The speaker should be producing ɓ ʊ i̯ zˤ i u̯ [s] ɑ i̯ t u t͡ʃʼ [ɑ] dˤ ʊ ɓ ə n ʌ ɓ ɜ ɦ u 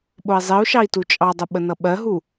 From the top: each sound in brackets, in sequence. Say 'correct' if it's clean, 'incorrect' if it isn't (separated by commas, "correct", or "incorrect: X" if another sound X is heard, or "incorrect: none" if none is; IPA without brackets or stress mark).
incorrect: ʃ, correct